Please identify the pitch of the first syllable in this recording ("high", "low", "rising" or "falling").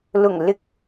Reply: low